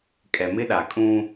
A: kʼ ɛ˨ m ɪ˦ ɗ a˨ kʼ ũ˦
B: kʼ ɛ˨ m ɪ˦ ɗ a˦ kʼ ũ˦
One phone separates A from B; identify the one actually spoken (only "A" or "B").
A